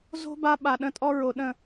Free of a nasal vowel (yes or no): no